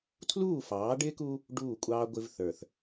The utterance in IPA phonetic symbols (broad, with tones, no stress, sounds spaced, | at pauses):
tʰ l uː˦˨ f ɑː˨˦ ɖ ɪː˦ k u˦ | ɖ uː˦˨ kʷʼ ɑː˦ ɡʷ ɪ˦ v θ ə˞˨ θ